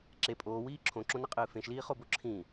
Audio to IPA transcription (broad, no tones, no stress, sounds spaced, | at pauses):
ǁ e pʼ oː w iː ǁʰ õ ǁ õ n ɘ qʼ ɨː f ẽ ʃ l iː χ o b o ǁʰ ĩ